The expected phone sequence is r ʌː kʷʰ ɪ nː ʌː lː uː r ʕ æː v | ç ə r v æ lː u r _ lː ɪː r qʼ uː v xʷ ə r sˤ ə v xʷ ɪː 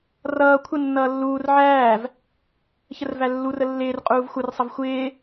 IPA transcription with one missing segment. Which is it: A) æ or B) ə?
B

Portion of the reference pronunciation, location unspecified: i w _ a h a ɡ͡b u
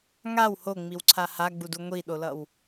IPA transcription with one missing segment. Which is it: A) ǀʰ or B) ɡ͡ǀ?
A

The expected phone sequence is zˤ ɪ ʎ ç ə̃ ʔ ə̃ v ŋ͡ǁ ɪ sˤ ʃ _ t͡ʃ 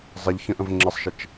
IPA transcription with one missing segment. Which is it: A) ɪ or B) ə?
B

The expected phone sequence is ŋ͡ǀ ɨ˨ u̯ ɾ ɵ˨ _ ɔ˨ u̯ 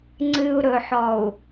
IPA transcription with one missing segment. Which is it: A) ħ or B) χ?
A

